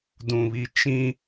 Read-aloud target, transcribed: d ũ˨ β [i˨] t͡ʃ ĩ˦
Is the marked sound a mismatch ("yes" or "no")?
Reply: no